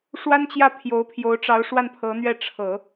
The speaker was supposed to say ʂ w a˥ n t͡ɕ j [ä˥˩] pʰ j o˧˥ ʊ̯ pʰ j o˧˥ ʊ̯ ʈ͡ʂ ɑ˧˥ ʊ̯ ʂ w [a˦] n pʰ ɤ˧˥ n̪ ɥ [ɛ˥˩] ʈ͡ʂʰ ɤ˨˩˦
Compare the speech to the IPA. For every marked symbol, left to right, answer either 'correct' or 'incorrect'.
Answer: correct, incorrect: a˥˩, correct

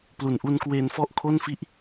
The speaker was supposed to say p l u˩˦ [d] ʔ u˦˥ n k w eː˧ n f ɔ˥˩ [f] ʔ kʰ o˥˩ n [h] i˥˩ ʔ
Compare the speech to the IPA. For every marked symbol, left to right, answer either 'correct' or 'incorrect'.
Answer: incorrect: n, incorrect: none, incorrect: f

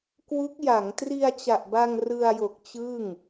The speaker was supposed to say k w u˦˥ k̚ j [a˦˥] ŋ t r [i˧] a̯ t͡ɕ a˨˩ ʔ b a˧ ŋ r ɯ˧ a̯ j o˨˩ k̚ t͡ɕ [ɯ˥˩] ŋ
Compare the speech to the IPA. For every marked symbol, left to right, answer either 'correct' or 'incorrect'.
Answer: incorrect: a˩˦, correct, correct

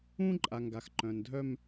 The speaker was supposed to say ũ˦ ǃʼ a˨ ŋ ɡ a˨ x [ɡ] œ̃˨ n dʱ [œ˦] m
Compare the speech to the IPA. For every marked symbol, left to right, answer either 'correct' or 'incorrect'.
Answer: incorrect: ǃ, correct

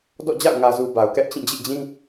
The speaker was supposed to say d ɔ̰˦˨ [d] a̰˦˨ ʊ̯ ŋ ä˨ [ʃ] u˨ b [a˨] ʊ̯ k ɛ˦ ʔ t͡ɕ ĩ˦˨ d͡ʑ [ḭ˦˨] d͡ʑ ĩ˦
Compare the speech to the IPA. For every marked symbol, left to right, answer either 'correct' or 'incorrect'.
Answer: incorrect: d͡ʑ, incorrect: z, correct, correct

